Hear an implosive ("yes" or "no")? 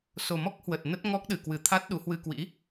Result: yes